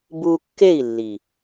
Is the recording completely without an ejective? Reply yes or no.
yes